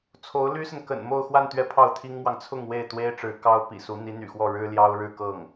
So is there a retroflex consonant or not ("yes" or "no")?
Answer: yes